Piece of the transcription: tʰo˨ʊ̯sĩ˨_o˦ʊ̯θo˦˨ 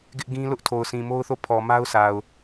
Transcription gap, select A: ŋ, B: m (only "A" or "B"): B